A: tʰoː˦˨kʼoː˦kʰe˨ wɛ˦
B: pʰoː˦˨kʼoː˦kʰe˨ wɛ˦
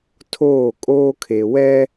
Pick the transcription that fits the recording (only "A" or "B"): A